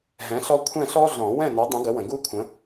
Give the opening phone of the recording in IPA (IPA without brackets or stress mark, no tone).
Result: ɦ